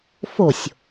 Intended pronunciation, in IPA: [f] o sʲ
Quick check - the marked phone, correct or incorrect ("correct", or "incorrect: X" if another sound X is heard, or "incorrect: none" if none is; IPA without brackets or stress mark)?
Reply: correct